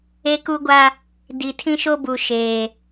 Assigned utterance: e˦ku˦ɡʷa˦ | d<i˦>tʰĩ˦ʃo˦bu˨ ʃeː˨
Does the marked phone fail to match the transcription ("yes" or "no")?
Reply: yes